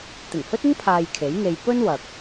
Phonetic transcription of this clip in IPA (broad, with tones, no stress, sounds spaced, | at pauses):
t̪ ɪ˨˩ ŋ h ɵ˥ t̚ ɪ˥ ŋ pʰ aː˧ j kʰ e˨˥ j ŋ e˨ j p ɵ˥ n w ɐ˨ k̚